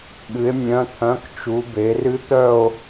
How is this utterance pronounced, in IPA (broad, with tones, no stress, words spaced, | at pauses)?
ɠɨ˩˧e̯mʲœ̃˩˧˩t̪ʰœ̃˩˧˩kt͡ʃu˩˧ be˩˧rɨ˦˥t̪œ˥˨o̯